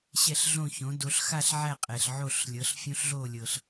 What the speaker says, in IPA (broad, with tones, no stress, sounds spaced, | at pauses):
ɕ ɛ˥˧ ɬ ɮ õ˥˧ ç õ˨˥ d o˨˥ ɬ x a˥˧ ɬ ʕ æ˥˧ qʼ ɛ˨ ɬ ʕ o˥˧ ɬ lʲ ɤ˨˥ ɬ fʲ õ˦˥ ɬ ɮ o˥˧ lʲ ɤ˨ ɬ